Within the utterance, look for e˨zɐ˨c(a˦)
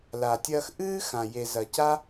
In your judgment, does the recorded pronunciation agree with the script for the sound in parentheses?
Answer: yes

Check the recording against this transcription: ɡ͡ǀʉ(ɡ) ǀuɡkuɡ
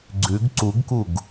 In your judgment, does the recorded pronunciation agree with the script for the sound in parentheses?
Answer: yes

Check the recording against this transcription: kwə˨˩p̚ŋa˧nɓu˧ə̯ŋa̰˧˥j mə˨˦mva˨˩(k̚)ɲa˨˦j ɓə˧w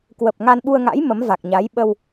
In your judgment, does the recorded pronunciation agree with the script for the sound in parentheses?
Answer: yes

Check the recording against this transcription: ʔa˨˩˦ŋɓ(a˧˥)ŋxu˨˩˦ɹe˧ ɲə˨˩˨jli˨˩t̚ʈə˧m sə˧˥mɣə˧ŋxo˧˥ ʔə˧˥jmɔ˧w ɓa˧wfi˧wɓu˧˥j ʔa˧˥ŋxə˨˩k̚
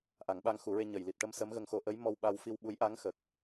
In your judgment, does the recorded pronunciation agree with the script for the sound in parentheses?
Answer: no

